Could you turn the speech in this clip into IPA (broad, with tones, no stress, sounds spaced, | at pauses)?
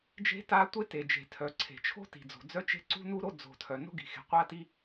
d͡ʒ e̤˦ t a˦ tʷ e˦ t e˨ d͡ʒ e̤˨ tʰ œ˨ ǀʰ e̤˨ t͡ʃʰ o̤˦ t i̤˨ d͡z o̤˨ d͡z œ˦ t͡ʃ e̤˦ ǀ ṳ˦ n u˦ ɾ o˦ d͡z o̤˨ tʰ œ˨ n o̤˦ ɡ i̤˨ x e̤˨ qʷ a˦ t i˦